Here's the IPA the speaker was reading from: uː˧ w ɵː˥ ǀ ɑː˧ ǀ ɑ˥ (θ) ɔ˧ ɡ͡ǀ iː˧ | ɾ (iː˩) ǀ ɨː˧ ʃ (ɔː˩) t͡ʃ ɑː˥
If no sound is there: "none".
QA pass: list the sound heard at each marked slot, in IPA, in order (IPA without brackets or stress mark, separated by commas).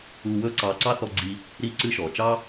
θ, iː˧, ɔː˩